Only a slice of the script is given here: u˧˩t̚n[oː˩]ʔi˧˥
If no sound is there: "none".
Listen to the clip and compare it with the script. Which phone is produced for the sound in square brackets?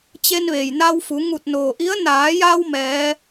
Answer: oː˩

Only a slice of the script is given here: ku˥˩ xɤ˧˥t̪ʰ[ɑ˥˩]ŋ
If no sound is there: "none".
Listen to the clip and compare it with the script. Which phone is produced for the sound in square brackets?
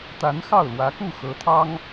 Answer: ɑ˥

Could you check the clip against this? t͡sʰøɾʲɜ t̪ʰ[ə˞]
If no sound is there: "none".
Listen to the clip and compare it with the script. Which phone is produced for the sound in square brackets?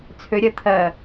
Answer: ɜ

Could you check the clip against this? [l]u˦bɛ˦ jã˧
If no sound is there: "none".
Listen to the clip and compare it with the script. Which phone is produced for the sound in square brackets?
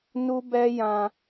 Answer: n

